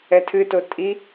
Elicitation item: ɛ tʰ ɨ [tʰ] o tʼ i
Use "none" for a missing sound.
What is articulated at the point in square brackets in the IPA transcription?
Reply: t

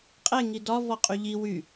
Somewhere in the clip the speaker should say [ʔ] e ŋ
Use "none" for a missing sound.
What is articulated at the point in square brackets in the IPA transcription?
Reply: qʼ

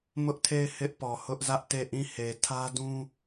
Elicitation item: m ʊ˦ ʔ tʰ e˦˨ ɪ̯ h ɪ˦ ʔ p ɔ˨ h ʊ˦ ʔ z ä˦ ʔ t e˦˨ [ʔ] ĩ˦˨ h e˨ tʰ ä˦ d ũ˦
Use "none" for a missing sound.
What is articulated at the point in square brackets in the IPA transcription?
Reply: ʔ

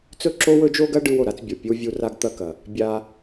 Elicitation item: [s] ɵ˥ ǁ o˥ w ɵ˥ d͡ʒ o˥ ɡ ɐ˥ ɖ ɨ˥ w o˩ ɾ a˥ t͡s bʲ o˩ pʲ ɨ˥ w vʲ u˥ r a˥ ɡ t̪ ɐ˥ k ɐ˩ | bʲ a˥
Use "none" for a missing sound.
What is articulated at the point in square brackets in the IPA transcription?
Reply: t͡s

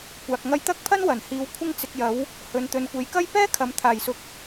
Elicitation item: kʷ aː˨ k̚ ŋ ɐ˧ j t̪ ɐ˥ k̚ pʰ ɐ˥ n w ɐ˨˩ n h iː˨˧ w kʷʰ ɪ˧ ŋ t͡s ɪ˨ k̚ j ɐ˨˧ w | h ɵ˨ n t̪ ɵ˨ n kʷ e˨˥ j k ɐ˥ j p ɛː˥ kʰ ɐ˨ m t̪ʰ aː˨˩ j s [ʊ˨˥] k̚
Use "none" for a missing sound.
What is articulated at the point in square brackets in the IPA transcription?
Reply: ʊ˨˥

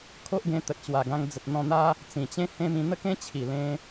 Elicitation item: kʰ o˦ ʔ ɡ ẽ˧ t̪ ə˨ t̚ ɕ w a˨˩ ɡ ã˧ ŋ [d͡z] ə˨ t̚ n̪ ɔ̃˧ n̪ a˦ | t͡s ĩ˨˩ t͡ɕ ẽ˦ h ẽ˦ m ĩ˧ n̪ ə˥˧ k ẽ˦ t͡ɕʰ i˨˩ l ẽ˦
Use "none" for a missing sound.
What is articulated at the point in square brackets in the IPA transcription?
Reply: d͡z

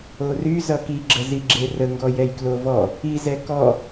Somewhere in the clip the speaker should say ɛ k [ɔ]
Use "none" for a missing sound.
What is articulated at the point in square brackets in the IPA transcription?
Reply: ɔ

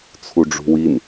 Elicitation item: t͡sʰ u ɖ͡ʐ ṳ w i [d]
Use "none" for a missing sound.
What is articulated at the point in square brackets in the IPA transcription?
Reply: n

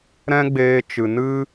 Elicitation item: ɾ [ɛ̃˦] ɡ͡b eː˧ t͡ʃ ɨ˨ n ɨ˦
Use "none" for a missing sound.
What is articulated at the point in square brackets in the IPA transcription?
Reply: ɛ̃˦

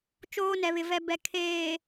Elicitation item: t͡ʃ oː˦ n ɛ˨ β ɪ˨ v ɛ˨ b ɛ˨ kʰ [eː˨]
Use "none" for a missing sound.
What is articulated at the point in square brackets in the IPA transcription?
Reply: eː˨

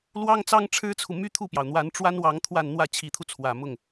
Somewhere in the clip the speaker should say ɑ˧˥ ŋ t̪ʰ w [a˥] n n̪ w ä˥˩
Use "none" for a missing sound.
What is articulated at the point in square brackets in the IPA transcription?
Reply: a˥˧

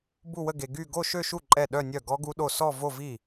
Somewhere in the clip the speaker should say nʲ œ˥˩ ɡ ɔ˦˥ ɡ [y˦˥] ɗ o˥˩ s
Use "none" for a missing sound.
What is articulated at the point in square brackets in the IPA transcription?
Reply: u˦˥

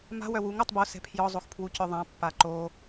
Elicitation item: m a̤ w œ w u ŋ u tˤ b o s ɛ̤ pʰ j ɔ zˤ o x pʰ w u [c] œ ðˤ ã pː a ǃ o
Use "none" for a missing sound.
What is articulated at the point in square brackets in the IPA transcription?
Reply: c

